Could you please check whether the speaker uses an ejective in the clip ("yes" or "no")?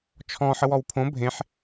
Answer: no